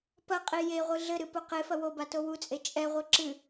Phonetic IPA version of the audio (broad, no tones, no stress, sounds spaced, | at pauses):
p ɐ qʼ i j e ʁʷ ɨ ɮ ɘ ɾ ɨ p o q e f ɐ w o b a t o w u t͡sʼ e t͡ʃʼ ɛ ʁʷ ɛ ǁ ɨ